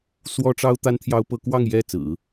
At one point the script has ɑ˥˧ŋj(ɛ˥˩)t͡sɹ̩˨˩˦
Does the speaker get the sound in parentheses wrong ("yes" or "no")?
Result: no